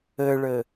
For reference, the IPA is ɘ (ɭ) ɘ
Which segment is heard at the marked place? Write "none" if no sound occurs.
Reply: ɭ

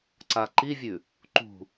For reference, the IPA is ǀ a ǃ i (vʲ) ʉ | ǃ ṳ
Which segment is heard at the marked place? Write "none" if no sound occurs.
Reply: vʲ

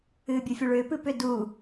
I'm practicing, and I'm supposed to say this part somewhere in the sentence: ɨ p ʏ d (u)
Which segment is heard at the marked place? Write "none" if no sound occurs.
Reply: uː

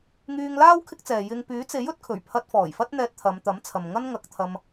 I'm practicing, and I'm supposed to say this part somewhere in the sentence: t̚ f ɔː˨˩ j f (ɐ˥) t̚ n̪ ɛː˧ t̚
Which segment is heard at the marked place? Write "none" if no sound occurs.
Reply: ɐ˥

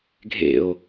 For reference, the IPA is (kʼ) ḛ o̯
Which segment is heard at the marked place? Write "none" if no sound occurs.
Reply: ɡʱ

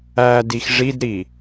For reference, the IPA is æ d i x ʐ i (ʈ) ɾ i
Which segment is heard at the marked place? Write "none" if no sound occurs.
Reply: d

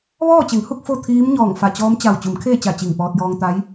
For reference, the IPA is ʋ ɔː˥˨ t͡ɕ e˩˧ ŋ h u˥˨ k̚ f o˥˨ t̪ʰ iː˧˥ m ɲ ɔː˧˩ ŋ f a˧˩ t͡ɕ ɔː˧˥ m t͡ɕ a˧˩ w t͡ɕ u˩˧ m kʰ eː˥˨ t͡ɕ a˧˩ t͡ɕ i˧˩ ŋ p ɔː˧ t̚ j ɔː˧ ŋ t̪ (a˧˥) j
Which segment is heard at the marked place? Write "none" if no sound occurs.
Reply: a˧˥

